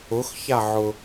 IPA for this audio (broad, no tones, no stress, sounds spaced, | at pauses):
ʊ x ç a ʕ ʊ